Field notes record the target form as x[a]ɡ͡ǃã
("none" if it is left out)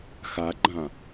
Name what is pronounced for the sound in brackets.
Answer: a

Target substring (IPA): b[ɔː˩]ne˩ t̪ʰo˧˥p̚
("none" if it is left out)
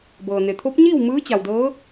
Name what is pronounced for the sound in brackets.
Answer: ɤː˩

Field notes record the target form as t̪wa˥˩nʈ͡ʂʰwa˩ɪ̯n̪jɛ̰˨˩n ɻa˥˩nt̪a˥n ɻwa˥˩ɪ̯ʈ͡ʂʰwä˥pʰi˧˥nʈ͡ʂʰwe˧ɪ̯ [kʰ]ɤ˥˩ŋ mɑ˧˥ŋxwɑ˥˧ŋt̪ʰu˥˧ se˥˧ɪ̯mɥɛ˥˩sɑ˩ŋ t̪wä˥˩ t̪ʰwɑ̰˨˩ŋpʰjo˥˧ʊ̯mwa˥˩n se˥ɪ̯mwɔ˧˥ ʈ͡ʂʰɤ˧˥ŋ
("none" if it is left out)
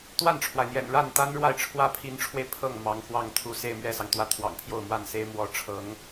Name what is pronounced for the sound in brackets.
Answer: pʰ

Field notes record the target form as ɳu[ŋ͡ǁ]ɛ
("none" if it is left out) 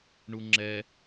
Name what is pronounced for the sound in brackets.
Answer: ŋ͡ǁ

